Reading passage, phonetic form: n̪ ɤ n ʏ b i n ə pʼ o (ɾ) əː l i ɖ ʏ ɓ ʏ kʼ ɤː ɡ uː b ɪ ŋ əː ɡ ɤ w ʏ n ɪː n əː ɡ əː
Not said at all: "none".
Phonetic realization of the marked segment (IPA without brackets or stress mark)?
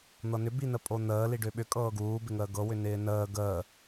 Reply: n̪